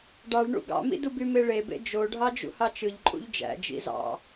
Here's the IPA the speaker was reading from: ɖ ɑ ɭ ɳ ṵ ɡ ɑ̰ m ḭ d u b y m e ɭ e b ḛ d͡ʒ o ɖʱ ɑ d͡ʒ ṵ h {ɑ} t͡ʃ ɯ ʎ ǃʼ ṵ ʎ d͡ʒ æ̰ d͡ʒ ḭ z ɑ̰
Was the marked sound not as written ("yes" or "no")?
no